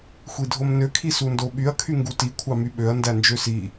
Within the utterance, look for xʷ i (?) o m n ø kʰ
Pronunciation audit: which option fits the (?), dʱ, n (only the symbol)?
dʱ